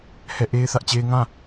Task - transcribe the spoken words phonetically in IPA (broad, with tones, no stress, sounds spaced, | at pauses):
h ɛ˦˨ ʔ e˦ ɪ̯ θ ä˦ ʔ t͡ɕ e˦ ɪ̯ ŋ ã˦